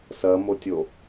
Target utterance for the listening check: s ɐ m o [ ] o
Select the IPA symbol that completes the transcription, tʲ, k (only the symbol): tʲ